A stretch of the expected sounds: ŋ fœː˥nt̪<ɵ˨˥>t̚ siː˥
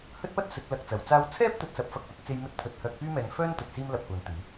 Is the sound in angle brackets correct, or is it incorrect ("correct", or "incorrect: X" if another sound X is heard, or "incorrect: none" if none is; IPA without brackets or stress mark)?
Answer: incorrect: ɵ˨